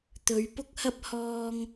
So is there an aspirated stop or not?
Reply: no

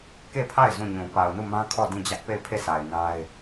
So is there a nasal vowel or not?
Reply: yes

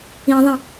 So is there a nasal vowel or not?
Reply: yes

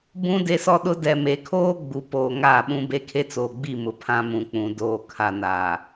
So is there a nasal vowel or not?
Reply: yes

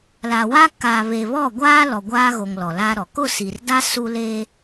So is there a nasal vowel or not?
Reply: no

